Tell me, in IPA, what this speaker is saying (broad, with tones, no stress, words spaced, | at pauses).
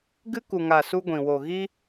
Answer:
ɡɨ˦ku˨ŋa˨ su˦ɡʷĩ˨ wo˨ ɣi˦